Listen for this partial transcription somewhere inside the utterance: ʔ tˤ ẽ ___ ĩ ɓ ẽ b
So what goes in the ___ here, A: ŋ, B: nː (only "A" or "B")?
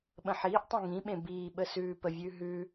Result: A